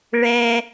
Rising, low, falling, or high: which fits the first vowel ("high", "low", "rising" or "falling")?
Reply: high